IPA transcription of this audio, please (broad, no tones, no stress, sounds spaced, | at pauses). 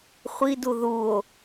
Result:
χʷ i d u ð u o̯